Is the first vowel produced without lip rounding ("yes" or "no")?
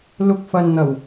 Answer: no